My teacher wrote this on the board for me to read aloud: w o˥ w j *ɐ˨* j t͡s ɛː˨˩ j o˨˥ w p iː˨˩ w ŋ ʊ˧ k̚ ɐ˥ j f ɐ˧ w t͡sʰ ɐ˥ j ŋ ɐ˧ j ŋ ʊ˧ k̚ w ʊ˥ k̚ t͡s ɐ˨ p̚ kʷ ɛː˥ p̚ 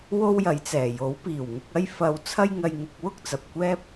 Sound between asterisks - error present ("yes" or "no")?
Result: yes